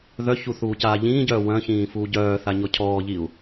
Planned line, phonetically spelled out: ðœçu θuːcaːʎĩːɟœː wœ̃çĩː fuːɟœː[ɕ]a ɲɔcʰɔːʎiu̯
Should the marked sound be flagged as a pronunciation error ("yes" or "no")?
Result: yes